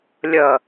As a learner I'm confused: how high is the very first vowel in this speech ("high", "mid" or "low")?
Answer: mid